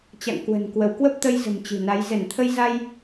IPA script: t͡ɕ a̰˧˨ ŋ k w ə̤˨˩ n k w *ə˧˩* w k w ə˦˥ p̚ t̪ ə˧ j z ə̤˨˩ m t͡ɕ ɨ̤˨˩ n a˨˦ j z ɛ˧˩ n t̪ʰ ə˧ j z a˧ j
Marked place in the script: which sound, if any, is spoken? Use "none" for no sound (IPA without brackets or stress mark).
ə˧˩